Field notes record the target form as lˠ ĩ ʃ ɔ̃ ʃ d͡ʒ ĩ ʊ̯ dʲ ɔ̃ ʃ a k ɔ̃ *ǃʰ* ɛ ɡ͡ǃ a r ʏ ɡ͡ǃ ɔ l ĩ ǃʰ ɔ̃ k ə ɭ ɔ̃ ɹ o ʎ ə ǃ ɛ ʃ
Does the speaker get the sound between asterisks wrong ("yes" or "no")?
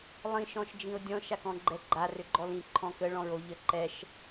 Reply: yes